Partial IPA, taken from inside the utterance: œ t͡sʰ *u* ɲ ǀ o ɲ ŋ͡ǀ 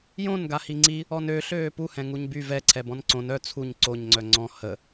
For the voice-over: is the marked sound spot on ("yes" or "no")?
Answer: yes